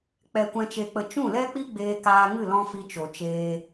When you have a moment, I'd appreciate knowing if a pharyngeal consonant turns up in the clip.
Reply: no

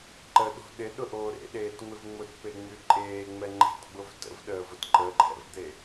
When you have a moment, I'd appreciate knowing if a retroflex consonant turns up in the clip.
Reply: no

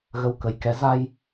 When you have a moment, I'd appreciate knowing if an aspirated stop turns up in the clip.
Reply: no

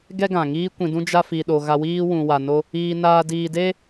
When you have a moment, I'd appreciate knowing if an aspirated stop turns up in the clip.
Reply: no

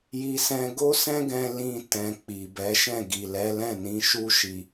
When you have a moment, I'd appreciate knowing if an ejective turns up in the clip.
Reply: no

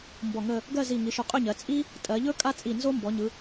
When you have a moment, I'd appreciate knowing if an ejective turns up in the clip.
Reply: yes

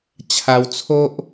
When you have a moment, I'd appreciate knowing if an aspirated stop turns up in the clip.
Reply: yes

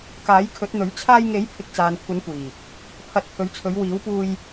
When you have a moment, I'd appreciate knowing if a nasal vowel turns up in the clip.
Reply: no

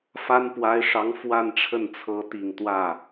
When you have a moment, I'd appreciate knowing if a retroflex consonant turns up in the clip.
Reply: yes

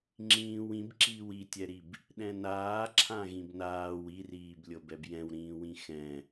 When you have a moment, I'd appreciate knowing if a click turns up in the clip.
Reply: yes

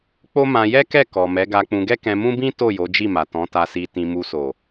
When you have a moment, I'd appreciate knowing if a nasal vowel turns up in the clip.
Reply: yes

